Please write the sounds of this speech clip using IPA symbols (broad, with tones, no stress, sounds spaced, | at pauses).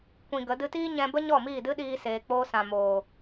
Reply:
kʷ ĩ˧ ɡ ə˨˦ d ɨ˧ t iː˦ ɲ ɛ̃˧ b ə˦ ɲ ɔ˦˨ m iː˦˨ d ɨ˦ ɗ iː˧ s eː˨ k͡p oː˧ s ã˨ m oː˨